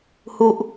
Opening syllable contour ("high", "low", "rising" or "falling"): falling